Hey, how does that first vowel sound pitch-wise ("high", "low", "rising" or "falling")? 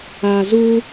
low